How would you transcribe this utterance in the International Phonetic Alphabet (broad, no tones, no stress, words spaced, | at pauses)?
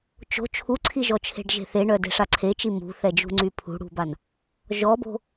t͡ʃo̤ t͡ʃʰuǀʰiʒɔt͡ʃʰe̤ɖ ʒe̤θeɳœ de̤ʂaǀʰet͡ʃi mṳθɛd͡ʒṳ ŋ͡ǀypʰṳɽṳban | ʒɔbo̤